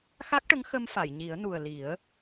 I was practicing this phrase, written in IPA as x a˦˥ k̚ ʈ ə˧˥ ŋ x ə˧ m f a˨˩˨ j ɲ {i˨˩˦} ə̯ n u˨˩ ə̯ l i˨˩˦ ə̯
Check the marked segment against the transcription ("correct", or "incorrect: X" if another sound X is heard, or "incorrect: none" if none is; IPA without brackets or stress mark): correct